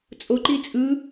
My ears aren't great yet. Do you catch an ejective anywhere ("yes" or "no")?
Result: yes